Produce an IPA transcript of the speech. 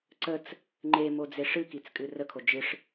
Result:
ǀ ə t͡s | ŋ͡ǃ e m o d͡z e ʂ ɨ k i t͡s kʼ ɨ r ə kʰ o d͡ʒ ɨ ʂ

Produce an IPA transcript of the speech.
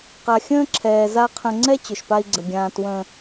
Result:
q a˨ xʲ ə̃ː˦ ǁʰ ɛː˨ z a˦ qʰ ə̃˦ ŋ͡ǀ ɛ˦ t͡ɕ ʏ˨ ʃ p a˦ i̯ ɡ͡ǀ ə˨ ɡʲ ãː˨ t w ə̃ː˨

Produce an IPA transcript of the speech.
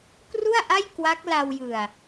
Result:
k r u˥˩ a̯ ʔ a˥˩ j k w a˦˥ k̚ l a˧ w j ɯ˨˩ a̯

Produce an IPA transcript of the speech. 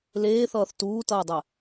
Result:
l eː θ ʌː θ t uː t ʌː dˤ ɛ

